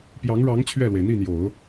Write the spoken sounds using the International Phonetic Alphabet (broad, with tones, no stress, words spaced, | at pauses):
pjɑ˧˥ŋɻɑ˧˥ŋ t͡ɕʰɥɛ˥˩lwe˩ɪ̯ n̪i˥˩n̪jo˨˩˦ʊ̯